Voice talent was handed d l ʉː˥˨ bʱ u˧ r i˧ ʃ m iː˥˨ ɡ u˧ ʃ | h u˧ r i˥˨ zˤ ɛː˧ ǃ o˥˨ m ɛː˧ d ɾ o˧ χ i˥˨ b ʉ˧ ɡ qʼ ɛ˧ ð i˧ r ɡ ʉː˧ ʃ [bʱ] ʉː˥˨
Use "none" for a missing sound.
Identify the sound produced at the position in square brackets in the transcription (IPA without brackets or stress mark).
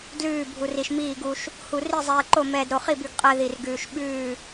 ɓ